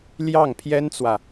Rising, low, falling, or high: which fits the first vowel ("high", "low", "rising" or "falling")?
falling